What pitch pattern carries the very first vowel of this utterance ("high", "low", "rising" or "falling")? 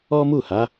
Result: high